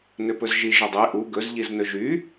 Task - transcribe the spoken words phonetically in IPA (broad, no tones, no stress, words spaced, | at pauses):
nøpɵzʒi ʒɵdˤe ʔu ɡɵz ʎiznɵʒy